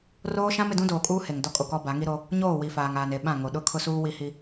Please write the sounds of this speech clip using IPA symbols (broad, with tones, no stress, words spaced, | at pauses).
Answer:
roː˦ʃã˦m ɪ˨dũ˦doː˨kʼuː˦ he˨ŋ dɔ˦kʼo˨kɔ˦ ba˨˦ŋi˦ɾo˦ | ɲoː˦˨wi˨faː˨ŋaː˨n e˨ɓã˦˨ ŋo˨ɗʊ˦kʰʊ˦suː˦ wi˦hi˦